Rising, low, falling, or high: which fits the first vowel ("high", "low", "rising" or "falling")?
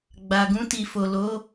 low